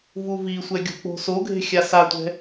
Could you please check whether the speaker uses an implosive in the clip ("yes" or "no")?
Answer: no